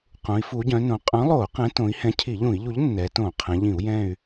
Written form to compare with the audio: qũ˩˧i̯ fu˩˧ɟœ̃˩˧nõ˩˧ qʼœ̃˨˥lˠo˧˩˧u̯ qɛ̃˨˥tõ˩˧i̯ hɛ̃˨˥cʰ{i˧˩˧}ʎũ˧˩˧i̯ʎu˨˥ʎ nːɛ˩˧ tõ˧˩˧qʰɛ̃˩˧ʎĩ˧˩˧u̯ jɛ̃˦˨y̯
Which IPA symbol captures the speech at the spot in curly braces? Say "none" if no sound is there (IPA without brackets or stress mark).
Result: i˧˩˧